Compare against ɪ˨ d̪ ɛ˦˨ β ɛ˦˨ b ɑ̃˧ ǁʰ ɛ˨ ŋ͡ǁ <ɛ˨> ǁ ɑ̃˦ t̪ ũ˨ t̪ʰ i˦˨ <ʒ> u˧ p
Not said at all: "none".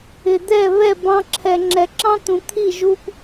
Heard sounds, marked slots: ɛ˨, ʒ

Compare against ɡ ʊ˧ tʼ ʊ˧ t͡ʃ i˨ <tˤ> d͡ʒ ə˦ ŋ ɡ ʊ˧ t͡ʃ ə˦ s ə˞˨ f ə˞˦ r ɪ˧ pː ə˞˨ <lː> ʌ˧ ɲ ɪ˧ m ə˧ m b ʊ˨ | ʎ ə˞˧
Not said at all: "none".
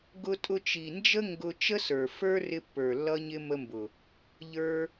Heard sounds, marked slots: n, lː

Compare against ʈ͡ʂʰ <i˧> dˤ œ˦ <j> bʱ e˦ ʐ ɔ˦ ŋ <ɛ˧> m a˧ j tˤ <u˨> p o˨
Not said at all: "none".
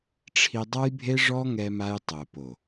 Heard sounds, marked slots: i˧, j, ɛ˧, o˨

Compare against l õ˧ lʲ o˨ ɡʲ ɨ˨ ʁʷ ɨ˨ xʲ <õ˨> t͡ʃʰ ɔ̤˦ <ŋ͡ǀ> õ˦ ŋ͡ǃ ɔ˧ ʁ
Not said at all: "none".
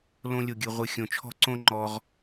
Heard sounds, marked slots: õ˨, ǀ

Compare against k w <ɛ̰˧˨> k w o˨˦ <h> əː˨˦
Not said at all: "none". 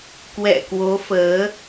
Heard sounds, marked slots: ɛ̰˧˨, f

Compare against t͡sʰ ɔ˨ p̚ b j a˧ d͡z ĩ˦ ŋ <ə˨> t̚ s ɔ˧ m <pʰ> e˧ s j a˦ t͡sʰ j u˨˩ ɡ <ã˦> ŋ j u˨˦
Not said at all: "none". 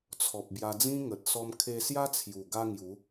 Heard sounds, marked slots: ə˨, kʰ, a˦

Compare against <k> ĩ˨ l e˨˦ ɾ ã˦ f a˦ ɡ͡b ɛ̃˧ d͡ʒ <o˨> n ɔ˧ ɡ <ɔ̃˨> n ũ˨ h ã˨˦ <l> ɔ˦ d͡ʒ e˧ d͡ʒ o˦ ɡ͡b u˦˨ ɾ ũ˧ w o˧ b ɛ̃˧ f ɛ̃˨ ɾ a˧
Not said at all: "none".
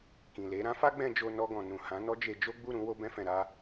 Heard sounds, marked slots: k, o˧, ɔ̃˨, n

